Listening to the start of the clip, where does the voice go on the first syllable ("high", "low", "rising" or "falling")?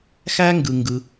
high